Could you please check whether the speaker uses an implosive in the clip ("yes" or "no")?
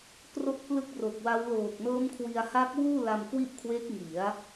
no